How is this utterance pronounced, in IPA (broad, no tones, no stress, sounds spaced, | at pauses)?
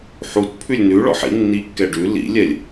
ħ u t pʰ ʉ lʲ n ʉ ɭ ɔ̰ ħ ḭ nː i kː ɛ ɖ ʉ l ḭ lʲ ɛ lʲ